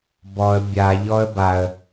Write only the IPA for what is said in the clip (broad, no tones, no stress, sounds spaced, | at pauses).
b ɔ ə̯ bʲ a ʎ ɔ ə̯ b a ə̯